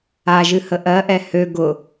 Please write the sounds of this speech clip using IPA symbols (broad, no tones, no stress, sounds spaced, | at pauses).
a ʒ ɨ h ə ʔ ɜ ʔ ɛ h ø ɡ ʊ